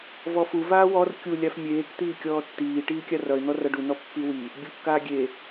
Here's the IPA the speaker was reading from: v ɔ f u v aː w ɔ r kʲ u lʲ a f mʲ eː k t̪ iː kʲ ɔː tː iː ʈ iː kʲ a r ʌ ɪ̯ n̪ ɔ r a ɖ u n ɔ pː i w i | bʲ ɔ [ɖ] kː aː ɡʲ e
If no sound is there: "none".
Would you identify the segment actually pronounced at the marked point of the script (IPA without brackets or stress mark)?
none